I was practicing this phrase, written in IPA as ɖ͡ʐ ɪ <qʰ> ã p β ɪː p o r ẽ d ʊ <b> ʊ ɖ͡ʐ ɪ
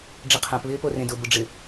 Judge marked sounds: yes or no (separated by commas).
yes, yes